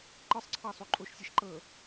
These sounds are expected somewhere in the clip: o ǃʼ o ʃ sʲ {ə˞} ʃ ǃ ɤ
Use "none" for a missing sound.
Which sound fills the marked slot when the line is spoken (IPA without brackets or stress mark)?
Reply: ɤ